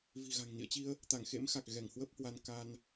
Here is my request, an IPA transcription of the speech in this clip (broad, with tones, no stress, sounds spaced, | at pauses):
v i̤˨˩ ɣ a̤˨˩ ŋ n ḭ˧˨ ə̯ t͡ɕ i˧ ə̯ | t̪ a˧˩ ŋ x ḛ˧˥ m x a˨˩ k̚ ɣ ɛ˧˩ ŋ h w ə˦˥ p̚ h w a˧ n k a˧ n